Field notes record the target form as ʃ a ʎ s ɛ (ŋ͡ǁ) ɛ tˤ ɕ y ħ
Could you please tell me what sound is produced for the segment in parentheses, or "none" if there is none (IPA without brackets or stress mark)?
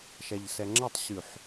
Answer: ŋ͡ǁ